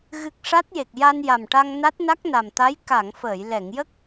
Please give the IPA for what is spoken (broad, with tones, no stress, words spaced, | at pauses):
ɣɨ˨˩k̚ ʂa˦˥t̚je˨˩k̚ ja˧nja˨˩mʈa˧ŋ na˦˥t̚na˦˥k̚na˨˩mt̪a˧˥j ka˨˩˨ŋ fəː˨˩˨jlɛ˨˩˨ŋjə˦˥k̚